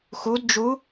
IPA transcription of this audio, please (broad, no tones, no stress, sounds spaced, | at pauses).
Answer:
x u d d͡ʒ u